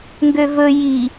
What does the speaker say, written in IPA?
ŋ ɡ ø v ɵ j i

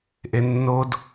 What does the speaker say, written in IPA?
ʔ e nː o d

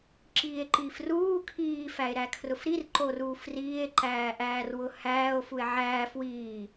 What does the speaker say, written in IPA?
ǁ iː e̯ ǃ iː f r uː kʰ iː f æ e̯ ɾ æ kʰ r ʊ f ɾ i r ǃ o r uː f r iː e̯ ǃ æː ʔ æː r w ʊ h æː o̯ f u e̯ ʕ æː f w iː

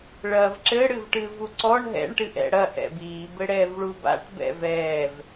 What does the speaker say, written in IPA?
ɭ ɐː v ǁ ɘ ɽ ɨ v ʈ ɨː v u ǀ ɔ ɳ ɦ ɛ̰ ɳ ʈ ɨ ʔ ɛ̰ ɽ ɐ ʔ ɛ̰ b iː b ɘ ɽ ɛː v ɭ u b a̰ ʈ b ɛ̰ v ɛː v

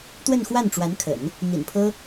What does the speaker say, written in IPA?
t̪ w ə˥˧ n x w a˥˩ n ʈ͡ʂ w a˧˥ n kʰ ə̰˨˩˦ n | n̪ ḭ˨˩ n pʰ ɤ˥

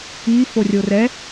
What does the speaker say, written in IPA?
i f o rʲ o r ɛ

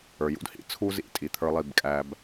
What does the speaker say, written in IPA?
ə˞˨ j ṵ˦ d h ḭ˦ t͡sʰ u˦ z ḭ˨˦ tʼ i˨ t̪ʰ ə˞˦ lˠ i˦˨ b kʼ æ˦ b

